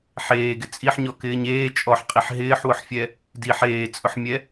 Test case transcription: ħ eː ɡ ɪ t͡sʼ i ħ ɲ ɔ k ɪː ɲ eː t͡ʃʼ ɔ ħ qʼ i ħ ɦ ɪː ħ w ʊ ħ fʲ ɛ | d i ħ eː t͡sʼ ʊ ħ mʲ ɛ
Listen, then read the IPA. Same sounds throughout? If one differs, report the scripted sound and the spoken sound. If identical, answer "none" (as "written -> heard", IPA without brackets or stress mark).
none